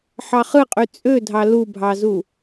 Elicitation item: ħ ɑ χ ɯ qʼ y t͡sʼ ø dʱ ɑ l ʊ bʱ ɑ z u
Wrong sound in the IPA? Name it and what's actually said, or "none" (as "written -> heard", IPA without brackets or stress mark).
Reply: ʊ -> u